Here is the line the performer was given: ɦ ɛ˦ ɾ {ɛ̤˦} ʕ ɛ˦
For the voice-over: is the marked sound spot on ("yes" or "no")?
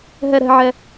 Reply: yes